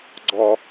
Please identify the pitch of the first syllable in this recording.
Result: high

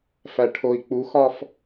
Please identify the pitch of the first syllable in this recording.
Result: low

